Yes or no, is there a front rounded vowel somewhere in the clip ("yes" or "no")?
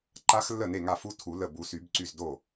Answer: yes